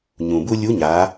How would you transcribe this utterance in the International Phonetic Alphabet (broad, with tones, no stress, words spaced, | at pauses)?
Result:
ɲũ˩bu˥ lʲu˧˥ɲa˩˧